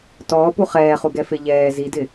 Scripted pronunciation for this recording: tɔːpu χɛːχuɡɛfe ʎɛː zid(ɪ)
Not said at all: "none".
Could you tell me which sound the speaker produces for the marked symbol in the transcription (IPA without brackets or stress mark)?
ɪ